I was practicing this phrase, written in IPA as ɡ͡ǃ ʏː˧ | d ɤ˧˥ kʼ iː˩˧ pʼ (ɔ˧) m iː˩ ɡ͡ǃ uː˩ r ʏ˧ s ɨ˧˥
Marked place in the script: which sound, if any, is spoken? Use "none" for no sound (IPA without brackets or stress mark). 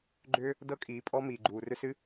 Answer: ɔ˧